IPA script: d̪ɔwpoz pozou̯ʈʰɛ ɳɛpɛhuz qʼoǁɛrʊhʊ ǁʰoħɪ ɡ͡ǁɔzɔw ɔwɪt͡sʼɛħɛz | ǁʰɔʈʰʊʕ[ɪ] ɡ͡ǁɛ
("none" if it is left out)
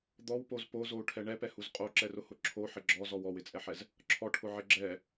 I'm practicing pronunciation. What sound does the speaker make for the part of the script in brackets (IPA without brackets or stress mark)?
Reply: ɪ